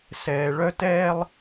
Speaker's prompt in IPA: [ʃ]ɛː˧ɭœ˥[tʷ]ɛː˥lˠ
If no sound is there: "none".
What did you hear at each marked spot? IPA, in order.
s, t

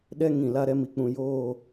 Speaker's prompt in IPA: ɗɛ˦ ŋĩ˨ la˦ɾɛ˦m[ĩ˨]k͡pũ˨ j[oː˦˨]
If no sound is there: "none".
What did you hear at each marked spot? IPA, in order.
i˨, oː˦˨

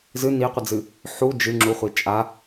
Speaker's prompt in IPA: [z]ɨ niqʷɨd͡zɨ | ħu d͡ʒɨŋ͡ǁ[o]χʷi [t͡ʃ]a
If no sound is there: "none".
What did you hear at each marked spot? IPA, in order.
z, u, t͡ʃʼ

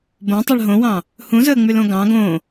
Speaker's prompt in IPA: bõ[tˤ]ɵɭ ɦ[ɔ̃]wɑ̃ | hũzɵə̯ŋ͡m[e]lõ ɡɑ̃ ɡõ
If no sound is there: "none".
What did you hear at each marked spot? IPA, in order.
tˤ, õ, y

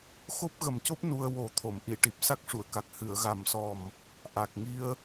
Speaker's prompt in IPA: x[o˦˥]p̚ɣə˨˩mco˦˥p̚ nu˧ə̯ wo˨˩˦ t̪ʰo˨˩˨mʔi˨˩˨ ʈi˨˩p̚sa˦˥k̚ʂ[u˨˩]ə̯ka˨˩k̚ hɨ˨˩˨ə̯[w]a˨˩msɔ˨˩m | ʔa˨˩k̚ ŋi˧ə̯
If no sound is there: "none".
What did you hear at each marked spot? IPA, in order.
o˦˥, u˨˩˨, ɣ

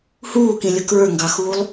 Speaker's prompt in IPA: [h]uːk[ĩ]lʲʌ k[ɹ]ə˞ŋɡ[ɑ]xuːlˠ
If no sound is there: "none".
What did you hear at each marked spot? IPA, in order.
h, ĩ, ɹ, ɑ

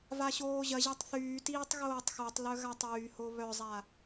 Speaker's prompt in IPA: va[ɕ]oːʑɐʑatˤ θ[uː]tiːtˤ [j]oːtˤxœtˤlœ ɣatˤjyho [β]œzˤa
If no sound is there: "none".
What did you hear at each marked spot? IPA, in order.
ɕ, yː, ɣ, β

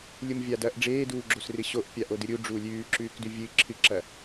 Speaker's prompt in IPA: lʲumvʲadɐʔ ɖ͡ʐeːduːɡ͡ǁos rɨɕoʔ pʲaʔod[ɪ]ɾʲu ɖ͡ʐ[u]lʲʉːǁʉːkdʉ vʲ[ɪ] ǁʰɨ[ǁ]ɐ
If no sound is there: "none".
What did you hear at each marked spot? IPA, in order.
ɨ, uː, ɨ, ǁ

